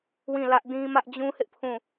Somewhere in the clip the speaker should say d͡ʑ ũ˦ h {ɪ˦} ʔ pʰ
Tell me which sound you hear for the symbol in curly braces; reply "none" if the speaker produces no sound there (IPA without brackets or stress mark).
ɪ˦